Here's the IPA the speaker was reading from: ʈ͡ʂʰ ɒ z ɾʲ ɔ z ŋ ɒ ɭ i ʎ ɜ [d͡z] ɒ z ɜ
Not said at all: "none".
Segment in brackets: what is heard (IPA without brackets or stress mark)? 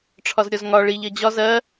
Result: d͡ʑ